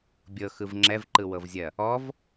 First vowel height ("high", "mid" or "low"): mid